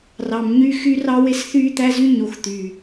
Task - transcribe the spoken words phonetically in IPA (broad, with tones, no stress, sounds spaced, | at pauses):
r ɑ˨ m ɲ y˦˨ x y˦ r ɑ˦ w e˦ s θ yː˦ t̪ æ˦ z y˦ ɲ o˨ x t̪ yː˨